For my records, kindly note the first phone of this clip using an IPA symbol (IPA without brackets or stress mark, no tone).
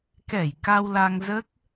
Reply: k